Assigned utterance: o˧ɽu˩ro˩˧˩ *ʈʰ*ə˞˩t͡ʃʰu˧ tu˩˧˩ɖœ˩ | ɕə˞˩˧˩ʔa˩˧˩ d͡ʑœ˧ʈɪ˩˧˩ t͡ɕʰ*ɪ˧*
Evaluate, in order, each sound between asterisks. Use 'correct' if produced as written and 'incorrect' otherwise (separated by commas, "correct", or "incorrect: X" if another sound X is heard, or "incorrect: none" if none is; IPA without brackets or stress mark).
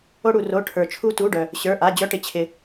correct, incorrect: ɪ˩